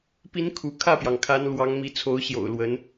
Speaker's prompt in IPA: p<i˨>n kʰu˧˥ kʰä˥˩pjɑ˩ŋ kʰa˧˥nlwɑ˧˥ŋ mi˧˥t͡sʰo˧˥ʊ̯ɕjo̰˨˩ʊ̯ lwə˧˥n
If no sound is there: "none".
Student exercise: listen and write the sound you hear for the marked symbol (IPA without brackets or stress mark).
i˧˥